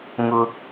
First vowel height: high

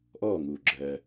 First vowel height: mid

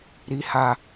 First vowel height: high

